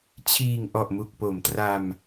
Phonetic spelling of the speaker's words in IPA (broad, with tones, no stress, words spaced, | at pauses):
t͡ɕʰiː˨˩ŋ ʔɔ˨˩ʔmu˨˩k̚po˩˦mtra˧m